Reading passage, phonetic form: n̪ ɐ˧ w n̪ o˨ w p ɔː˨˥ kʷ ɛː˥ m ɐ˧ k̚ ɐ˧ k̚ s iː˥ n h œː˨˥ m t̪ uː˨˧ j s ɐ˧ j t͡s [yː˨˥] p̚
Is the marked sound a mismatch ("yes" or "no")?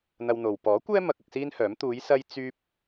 yes